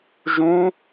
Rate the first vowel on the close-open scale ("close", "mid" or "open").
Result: close